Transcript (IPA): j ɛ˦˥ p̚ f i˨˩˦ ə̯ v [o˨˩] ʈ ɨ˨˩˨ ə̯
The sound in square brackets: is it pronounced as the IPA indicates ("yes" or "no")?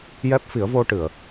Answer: no